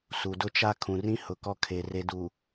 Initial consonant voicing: voiceless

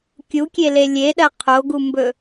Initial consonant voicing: voiceless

